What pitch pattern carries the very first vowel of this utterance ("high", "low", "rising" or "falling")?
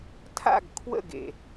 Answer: falling